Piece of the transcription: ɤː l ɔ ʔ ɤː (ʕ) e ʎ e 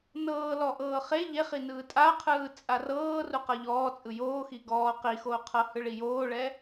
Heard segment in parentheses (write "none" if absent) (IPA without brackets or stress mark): χ